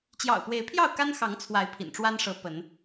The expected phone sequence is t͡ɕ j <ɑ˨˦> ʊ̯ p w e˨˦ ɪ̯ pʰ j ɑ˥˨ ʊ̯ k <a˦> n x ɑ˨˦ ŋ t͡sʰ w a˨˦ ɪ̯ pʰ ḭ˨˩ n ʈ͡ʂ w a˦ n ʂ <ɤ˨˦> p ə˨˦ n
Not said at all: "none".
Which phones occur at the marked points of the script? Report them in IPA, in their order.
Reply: ɑ̰˨˩, a˦, ɤ˨˦

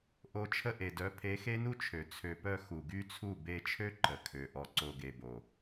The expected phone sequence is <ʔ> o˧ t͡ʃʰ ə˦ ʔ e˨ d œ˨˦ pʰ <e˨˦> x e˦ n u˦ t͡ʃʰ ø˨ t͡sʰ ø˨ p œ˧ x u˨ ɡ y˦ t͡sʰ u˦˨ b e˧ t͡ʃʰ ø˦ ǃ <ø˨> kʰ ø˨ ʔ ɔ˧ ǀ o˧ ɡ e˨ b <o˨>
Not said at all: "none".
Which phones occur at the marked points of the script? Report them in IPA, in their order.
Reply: ʔ, e˨˦, ə˨, o˨

